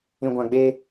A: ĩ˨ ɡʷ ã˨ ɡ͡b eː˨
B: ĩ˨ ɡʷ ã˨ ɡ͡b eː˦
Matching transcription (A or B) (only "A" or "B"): B